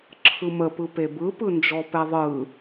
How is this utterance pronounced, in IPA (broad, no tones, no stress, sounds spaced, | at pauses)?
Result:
ǁʰ ɯ m ə p ɯ p e b ɯ p ɯ n d͡ʒ ɔ p ɛ ðˤ ɯ